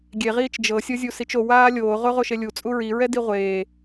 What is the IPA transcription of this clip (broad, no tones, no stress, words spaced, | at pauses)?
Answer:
ɡʲeʁiːt͡ʃ d͡ʒɤsʲɤzʲu sit͡ʃo waːlʲoː ʁoʁoʃelʲu t͡sʼuɹiɹɛ diʁʷeː